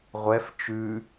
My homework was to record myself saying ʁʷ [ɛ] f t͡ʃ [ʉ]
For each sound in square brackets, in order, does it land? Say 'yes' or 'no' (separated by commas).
yes, yes